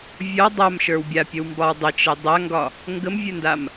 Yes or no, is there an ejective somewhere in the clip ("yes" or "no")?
no